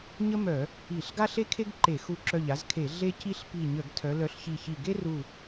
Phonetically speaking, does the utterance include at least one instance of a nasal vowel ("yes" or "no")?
no